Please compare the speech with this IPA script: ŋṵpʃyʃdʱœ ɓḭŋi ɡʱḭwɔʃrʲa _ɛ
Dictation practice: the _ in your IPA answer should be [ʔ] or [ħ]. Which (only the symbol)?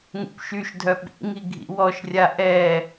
ʔ